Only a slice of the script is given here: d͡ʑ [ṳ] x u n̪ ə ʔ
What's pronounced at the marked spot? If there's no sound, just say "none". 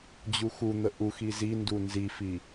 u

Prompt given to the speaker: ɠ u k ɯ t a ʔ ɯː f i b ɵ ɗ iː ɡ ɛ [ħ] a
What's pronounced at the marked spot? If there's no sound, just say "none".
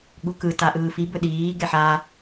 ħ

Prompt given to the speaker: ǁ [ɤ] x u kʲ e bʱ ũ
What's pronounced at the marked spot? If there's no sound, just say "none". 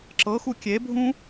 ɤ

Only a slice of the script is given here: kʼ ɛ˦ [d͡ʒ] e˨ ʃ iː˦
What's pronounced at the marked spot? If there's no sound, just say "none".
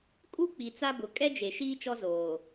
d͡ʒ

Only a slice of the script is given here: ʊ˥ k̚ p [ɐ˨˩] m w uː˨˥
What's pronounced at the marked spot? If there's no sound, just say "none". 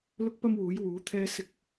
ɐ˥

